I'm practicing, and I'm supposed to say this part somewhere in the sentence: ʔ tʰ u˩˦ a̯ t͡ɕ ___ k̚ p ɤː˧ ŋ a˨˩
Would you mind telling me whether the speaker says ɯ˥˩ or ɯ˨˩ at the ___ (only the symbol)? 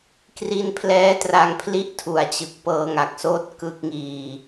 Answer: ɯ˨˩